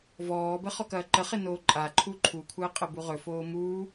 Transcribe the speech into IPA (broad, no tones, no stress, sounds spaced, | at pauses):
v ɔː b ə χ ɔ k ɐː ǃ ə χ e n oː ǃʼ a ǃʰ u ǃʰ u kʷʰ əː qʼ ə b u ʁ ɵ f oː m uː